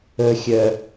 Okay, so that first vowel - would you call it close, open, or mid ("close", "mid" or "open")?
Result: mid